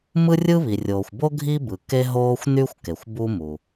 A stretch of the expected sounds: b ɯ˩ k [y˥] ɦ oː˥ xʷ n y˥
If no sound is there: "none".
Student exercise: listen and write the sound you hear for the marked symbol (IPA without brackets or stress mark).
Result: e˥